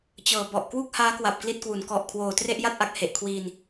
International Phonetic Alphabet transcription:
t͡ɕɤː˨˩ bɔ˨˩ʔ kwu˥˩k̚haː˦˥kwa˨˩p̚ kli˥˩t̚kwu˩˦n kɔ˨˩ʔkʰwoː˨˩ tre˥˩ʔja˥˩t̚ʔa˨˩k̚ he˨˩ʔ kʰwiː˧n

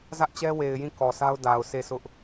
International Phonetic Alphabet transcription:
zä˦ʔt͡ɕɛ˦we˨ɪ̯jĩ˦˨ kɔ˨sa˦ʊ̯da˨ʊ̯ sʰe˦˨sʊ˦ʔ

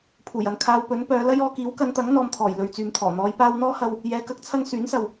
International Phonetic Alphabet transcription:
pʰuː˨˩jɐ˨n kʰaː˧wpɵ˨˥n pœː˨˧lɐ˥jɔː˧ kiː˨˥wkɐ˨˧nt̪ɐ˨˥ŋ n̪ɔː˧mt̪ʰɔː˨˩j lɵ˨ɥt͡syː˨mt̪ʰɔː˨˩ n̪ɔː˨˧jpaː˧wn̪ɔː˥hɐ˧w | jɛː˨˧kɐ˨˥k̚t͡sʰɐ˧ŋ syː˨˥nsɐ˨w

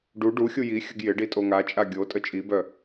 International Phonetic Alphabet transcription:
ɖu ɖuxʲu jixʲəɡ jɪɖi tʼoŋat͡ʃʼa ɡʲo tʼət͡ʃʼibœ

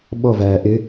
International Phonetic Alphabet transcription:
ɓɔvæː ʔɪ

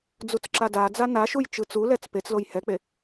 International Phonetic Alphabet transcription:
d͡zut͡sǁadad͡za naʃuj t͡ʃɯt͡sulɛt͡s pet͡sloj hɛk͡pe

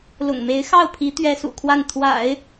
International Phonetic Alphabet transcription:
lʊ̰˨˩ŋme˧˥ɪ̯xɑ˥˩ʊ̯pʰi˧˥ t̪ɥɛ˥sṵ˨˩kʰwa˥˩n t̪ʰwa̰˨˩˦ɪ̯

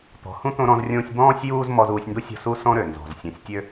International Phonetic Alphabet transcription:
t̪ɔ̤˨ hũ˥t̪õ˦ɾɔ̃˦zrʲõː˦sʲ bɔ̃ː˦sʲjuː˦z mɔ˦zuː˦sʲndu˥ sʲɔ̤˦su˥ sɔ̃˥ɾø˩ nzɔ̤˩zsʲɔ̃˨sʲtʲø˥

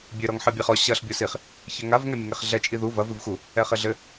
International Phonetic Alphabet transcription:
bʲɘ ɾɔŋħɨbʲeχɔ ɕɐɬ bʲosiχ | çɘŋav ŋɛmʲɐŋeχɮɛ t͡ʃʼiðu vɐ vɨvxu | ɛχɘɮɘ

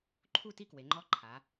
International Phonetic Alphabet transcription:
ǃʰu˥˨ti˥˨kwe˩˧ŋ͡ǃɔ˧˥ ǃʰa˩˧

